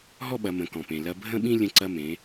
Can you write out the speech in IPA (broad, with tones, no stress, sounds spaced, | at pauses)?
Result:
ɦ ɔ˥ ɓ ɐ˩˧ m ə̃˩˧ k ɔ̃˩ p ẽ˩ l ɐ˧ bʱ ə̃˥ ɓ ĩ˥ lʲ ə̃˧ ǀ ɐ˧ m ẽ˩˧